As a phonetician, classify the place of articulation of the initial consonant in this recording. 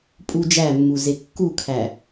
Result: labial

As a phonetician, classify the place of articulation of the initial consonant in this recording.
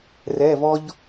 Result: alveolar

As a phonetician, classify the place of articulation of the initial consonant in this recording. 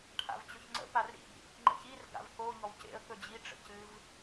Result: retroflex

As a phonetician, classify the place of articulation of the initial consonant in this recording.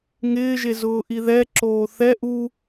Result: velar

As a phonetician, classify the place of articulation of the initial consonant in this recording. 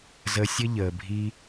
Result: alveolar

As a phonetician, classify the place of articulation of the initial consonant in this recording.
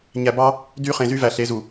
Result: palatal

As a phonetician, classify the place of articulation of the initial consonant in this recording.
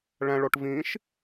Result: retroflex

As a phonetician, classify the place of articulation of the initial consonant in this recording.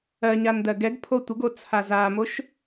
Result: palatal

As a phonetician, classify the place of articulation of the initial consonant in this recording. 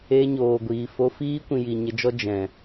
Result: palatal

